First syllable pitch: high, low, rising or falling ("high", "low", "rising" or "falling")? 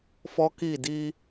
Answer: high